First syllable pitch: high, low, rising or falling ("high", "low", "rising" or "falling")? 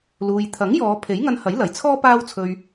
low